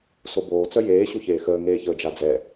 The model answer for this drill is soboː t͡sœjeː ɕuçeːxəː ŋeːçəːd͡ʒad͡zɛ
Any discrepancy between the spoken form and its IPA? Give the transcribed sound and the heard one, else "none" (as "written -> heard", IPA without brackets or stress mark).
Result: none